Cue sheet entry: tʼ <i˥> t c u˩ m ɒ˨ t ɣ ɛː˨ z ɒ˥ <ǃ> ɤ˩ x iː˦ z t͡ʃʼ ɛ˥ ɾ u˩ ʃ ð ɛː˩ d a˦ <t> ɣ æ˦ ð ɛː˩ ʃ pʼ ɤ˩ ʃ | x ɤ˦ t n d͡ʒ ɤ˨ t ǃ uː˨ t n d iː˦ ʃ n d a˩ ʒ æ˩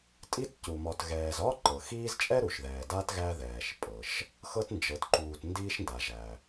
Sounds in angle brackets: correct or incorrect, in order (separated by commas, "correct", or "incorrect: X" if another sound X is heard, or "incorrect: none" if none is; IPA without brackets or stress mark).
correct, correct, correct